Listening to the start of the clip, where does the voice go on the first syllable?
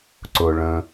low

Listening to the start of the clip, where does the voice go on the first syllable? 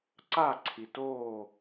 falling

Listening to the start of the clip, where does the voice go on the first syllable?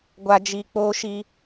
high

